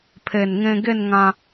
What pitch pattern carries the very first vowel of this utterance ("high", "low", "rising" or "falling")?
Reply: low